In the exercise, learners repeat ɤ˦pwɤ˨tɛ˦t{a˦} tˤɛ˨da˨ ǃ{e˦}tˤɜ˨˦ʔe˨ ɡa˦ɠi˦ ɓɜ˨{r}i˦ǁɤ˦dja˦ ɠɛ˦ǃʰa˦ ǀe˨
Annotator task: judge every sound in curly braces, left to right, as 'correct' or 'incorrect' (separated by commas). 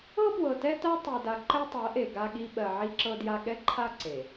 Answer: correct, incorrect, incorrect